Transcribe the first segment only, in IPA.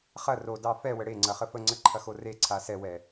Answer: χ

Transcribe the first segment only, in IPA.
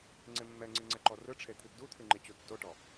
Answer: ŋ͡ǀ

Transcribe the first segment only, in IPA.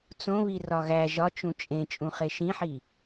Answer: t͡s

